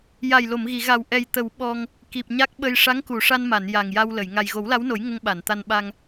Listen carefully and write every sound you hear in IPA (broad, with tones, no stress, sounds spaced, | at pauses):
j a˨˩ j l o˨˩˨ m ɣ i˨˩˨ ɣ a˨˩ w ʔ ɛ˨˩ j t̪ ə˨˩˦ w ɓ ɔ˧ ŋ | k i˨˩ p̚ ɲ a˦˥ k̚ ɓ ə˧ j ʂ a˧˥ ŋ k u˨˩˨ ʂ a˧ n m a˨˩˨ n j a˨˩ ŋ j a˧ w l ə˨˩˨ j ŋ a˨˩ j ɣ o˨˩˦ w l a˧˥ w n o˨˩˦ j ŋ ə˧ ŋ ɓ a˨˩˨ n t̪ a˧ n ɓ a˧ ŋ